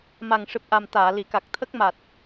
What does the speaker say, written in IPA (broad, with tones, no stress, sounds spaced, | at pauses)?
m a˨˩ ŋ ʂ ɨ˨˩ p̚ ʔ a˨˩ m t̪ aː˨˩˨ l i˨˩˨ k a˨˩ k̚ t̪ʰ ə˦˥ k̚ m a˨˩ t̚